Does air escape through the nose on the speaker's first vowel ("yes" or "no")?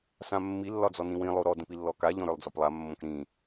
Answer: yes